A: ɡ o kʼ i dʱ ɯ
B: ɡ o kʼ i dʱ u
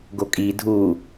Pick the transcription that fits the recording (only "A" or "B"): B